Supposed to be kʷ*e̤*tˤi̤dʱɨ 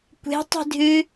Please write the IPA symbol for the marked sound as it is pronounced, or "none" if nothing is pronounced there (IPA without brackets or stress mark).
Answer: e̤